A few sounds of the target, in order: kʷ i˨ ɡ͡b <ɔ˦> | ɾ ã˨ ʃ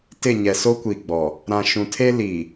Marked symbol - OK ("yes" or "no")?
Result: no